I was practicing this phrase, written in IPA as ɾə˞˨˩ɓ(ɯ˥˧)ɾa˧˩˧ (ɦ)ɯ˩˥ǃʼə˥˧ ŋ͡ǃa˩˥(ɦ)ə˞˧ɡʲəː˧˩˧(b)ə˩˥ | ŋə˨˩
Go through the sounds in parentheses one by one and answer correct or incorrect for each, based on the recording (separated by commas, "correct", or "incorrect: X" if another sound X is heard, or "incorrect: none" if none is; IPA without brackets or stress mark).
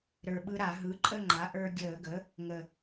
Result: incorrect: ɯ˧, correct, incorrect: ʔ, incorrect: ɡ